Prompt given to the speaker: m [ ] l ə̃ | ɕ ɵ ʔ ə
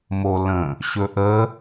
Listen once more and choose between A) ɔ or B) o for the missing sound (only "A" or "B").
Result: B